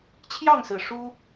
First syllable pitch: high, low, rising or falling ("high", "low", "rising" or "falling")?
falling